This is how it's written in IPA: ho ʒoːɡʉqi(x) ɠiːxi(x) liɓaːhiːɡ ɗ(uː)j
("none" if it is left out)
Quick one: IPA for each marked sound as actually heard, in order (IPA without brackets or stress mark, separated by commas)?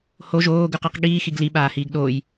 q, ɡ, oː